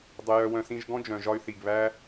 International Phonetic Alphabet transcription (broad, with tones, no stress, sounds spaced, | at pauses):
dˤ ə˧ j œ˧ w œ̃˧ s ĩ˧ ʒ ɡ ɔ̃˦ d͡ʒ œ̃˨ ʒ ɒ˧ y̯ θ i˨ ɡ β æ˦